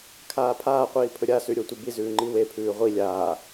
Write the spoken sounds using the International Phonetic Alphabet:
kʰ aː pʰ aː qʷ iː pʰ ɵ ɾʲ a s ʉ ɾʲ o tʷ i b i z ʉː ŋ͡ǃ i w e pʰ ʉː ʁʷ i lʲ aː

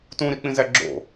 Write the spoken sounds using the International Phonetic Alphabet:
t ũ ɾ i k͡p ĩ z æ ɡ͡ǁ o̰

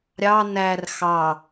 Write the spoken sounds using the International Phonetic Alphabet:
ɾʲ ɑ n æ r x ɑ

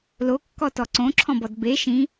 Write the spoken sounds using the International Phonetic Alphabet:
l o kː ɔ t ɔ ǀ õ ǁʰ ɔ̃ b ɔ d b e ʃ ĩ

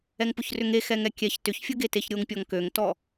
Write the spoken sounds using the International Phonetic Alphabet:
ɛ ŋ p ʊ ç r ʏ ŋ e x ɛ ŋ ɛ kʲ ɛ ç t ʏ ç fʲ ʊ ɡ e t e ç ɾʲ o ŋ pʲ ɔ ŋ k ø ŋ t ɔ

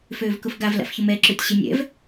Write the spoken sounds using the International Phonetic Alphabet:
f øː v k ʊ f ɡ a v l a̰ f ç ʊ m ɛ ǁ ø tʲ ɕ ɪ nʲ ɛ̰ v

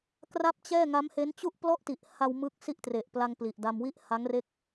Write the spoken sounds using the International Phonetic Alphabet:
k r a˥˩ p̚ t͡ɕ ɛː˥˩ ŋ a˦˥ m h e˦˥ n t͡ɕ u˥˩ ʔ p l ɔ˥˩ ʔ t i˨˩ ʔ h a˧ w m ɯ˦˥ k̚ s i˥˩ ʔ t r e˨˩ ʔ p l a˧ ŋ p l i˨˩ ʔ d a˧ m w i˥˩ ʔ h a˦˥ ŋ r e˥˩ k̚

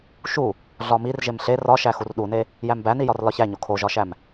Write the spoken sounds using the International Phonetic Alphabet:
ʃ u | ɮ ɒ m i r ʒ e m ɬ e r ɒ ʃ æ x u r ɗ u n e | j æ m b æ n i j ɒ r l ɒ ç æ ɲ o kʰ o ʒ ɒ ʃ æ m

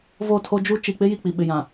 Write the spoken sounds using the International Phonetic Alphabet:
v o˦˨ tʰ o˦ d͡ʒ u˦ t͡ʃ i˨ k͡p ɪ˦ j i˨ k͡p i˨ ɓ ɪ˨ j ã˨

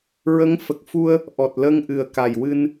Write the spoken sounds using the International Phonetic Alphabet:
ɹ ə˧˥ ŋ f ə˨˩ k̚ f u˧ ə̯ | ʔ ɔ˨˩ t̚ l ə˧ ŋ ʔ ɨ˨˩ ə̯ k a˨˩ j w ɨ˧ n

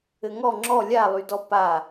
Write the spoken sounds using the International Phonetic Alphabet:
ɘ ŋ ɔ ŋ͡ǁ ɔ lʲ a lˠ y d ɔ p a

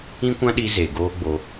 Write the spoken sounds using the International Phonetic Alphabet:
ĩ˦ kʷ ã˦ ɗ i˧ z e˨ ɡ oː˦ ɡ͡b o˧

